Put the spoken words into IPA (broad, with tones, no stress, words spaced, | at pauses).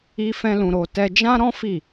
i˦ fɛ̃˦lũ˧ɾo˧ tɛ˧d͡ʒã˦ɾɔ̃˦ fi˦˨